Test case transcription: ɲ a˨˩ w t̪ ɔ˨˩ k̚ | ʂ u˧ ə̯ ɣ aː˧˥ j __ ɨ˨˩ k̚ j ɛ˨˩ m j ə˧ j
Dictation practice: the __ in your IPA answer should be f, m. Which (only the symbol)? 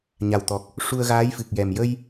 f